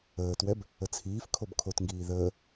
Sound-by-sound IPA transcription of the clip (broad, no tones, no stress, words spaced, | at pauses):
əːtwɛb | ət͡sʰiːfkʰob kʰotŋɡiː ðəː